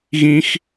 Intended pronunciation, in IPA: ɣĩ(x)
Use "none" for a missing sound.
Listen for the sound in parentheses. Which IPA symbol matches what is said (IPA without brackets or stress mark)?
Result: x